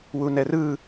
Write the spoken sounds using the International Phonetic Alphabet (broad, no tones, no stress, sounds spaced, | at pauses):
w u n ɛ r ɯ